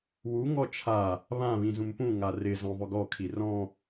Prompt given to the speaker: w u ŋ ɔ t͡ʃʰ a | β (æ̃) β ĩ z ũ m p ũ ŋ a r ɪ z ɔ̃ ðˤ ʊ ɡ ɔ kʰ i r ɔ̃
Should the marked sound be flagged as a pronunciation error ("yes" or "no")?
yes